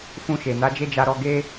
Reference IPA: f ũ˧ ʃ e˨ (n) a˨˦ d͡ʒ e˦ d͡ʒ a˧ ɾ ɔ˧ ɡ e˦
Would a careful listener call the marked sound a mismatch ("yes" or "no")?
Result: no